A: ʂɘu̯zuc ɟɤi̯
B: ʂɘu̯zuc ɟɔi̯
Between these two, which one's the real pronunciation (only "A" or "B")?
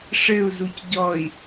B